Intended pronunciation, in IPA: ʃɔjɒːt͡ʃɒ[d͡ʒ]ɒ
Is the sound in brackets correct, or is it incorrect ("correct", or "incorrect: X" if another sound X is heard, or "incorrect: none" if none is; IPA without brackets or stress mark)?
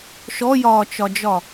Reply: correct